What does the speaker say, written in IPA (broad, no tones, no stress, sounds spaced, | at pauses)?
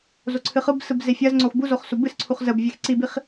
z o ǀʰ ɨ χ ɯ b s ɯ b z e fʲ ɜ z ŋ͡ǀ o x b u z o χ s u b ɨ s ǀʰ u χ z ə b vʲ ɛ x ǀ i b i χ